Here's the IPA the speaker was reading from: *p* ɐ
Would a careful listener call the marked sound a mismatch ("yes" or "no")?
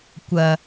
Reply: yes